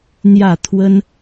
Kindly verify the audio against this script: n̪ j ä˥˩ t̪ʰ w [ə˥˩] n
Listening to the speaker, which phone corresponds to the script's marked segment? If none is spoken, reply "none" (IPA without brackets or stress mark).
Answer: ə˥